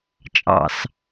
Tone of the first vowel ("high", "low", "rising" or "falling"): low